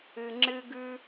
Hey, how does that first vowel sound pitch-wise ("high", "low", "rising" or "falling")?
low